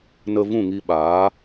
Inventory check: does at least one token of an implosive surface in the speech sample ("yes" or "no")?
yes